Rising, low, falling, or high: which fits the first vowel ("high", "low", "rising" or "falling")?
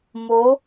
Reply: rising